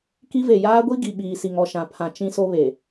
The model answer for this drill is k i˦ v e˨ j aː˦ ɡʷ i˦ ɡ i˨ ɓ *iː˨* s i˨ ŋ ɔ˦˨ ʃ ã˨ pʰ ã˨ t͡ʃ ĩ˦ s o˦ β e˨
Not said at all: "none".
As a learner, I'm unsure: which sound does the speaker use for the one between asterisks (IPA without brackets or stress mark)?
iː˨